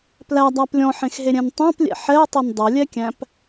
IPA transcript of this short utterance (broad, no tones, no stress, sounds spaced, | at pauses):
p l æ dˤ æ p lʲ ɔ̃ ħ ẽ x ɦ e ɾʲ ɛ̃ n tˤ ɑ̃ p lʲ ɛ̰ ħ ɛ ɐ̯ tˤ e n dˤ ɛ lʲ ɛ kʲ æ̃ p